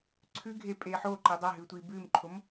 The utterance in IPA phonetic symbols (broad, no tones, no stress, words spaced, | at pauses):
ǀʰʉɡʱe pʼeːħoǃi dˤaɦʉːtʷiː bʉːmǃʰom